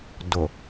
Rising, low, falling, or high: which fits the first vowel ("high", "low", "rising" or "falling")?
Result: low